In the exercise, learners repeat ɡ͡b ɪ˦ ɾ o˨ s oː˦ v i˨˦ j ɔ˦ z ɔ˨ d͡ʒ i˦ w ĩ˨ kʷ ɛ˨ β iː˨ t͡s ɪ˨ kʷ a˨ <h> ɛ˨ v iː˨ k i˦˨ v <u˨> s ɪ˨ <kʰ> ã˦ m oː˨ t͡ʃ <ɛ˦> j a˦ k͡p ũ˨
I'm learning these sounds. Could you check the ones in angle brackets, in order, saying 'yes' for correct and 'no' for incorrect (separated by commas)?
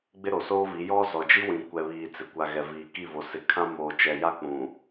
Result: no, no, yes, no